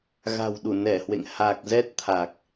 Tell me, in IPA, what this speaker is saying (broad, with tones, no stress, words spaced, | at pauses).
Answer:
ɣa̤˨˩wɗu˧˩nɛ˧˩hwḛ˧˨ŋ ha˨˩k̚zɛ˦˥t̚ t̪ʰa˨˩k̚